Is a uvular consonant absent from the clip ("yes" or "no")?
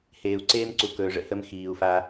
yes